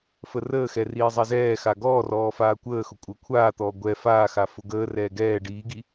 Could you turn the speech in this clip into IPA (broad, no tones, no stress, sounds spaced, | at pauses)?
f ə r əː x ɛ r iː zˤ ɛ z ɛː x a ɡ ɔː r ɔː f aː kʷ əː x ʊ kʷʼ əː kʷʰ aː t̪ ɔː ɡʷ ɛ f aː x a f ʊ ɡ əː r ɛː ɡ ɛː ɖ iː ɡ i